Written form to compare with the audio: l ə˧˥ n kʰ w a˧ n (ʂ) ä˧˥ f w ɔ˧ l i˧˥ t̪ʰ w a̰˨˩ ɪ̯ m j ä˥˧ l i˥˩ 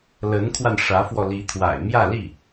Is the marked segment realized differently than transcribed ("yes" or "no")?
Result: no